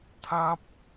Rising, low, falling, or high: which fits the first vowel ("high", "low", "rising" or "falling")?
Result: high